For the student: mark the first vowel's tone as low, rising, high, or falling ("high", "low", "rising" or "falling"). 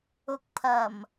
low